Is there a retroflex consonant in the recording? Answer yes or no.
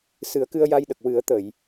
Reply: no